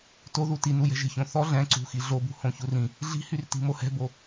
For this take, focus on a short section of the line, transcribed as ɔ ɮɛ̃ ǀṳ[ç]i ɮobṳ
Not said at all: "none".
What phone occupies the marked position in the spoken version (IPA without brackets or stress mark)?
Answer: x